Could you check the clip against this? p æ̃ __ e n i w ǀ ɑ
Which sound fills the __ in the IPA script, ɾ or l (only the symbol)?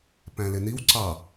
l